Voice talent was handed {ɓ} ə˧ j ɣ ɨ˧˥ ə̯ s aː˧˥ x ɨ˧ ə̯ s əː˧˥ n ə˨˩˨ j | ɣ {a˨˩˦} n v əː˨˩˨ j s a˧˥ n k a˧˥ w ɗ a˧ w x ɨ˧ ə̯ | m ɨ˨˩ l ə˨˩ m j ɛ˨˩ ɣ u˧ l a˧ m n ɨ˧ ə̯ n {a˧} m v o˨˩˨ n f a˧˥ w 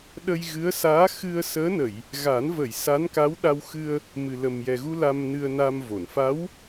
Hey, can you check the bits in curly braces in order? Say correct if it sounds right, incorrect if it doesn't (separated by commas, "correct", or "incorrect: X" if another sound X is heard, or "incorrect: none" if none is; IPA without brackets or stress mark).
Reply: incorrect: ɗ, correct, correct